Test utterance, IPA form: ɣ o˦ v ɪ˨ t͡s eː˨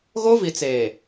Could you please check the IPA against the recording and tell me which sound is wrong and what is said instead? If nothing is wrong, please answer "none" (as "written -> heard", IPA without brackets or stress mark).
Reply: ɪ˨ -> i˨